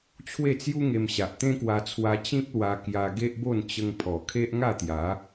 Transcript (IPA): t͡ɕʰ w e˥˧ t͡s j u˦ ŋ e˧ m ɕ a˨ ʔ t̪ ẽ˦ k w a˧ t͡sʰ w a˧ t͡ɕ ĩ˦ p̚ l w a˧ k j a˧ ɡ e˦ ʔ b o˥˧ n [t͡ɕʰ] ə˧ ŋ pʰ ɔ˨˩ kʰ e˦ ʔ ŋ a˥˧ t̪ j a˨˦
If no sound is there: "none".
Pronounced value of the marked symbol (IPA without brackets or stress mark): t͡ɕ